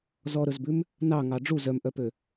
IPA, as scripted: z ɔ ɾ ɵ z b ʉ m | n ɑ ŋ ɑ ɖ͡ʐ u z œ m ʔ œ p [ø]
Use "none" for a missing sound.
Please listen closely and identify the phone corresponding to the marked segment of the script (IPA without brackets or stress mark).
ø